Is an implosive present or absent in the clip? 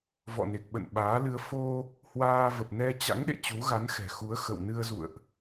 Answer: present